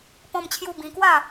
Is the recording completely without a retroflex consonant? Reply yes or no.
yes